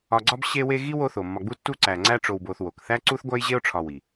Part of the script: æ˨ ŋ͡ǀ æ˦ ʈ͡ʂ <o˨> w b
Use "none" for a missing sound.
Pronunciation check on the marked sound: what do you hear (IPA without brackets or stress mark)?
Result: o˨